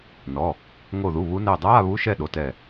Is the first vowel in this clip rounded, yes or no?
yes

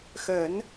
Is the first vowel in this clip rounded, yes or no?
no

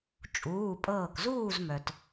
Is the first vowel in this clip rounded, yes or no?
yes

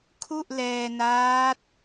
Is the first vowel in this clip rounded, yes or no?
yes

